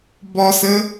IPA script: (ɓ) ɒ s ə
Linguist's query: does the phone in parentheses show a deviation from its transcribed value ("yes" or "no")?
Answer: yes